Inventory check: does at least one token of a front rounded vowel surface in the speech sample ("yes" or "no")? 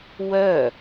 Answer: yes